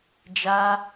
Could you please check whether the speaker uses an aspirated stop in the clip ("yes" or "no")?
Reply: no